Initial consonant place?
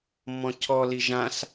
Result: labial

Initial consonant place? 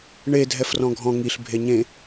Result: retroflex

